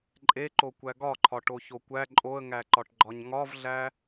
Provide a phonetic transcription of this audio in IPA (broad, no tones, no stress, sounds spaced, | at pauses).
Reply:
ǃʼ e ǃ o kʷ æ ɡ ɒ ǃʰ ɒ ʈ o ç o kʷ æ ǃʼ o ə̯ ŋ æ ǃ ɒ ʈ ɡ͡ǃ ɒ ɲ ŋ ɒ v ɮ æ